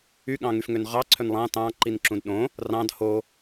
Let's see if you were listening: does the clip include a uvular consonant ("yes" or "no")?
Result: yes